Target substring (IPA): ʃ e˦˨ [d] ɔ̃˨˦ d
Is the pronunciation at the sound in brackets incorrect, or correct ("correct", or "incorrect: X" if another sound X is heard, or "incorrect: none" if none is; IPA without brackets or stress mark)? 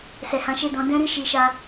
correct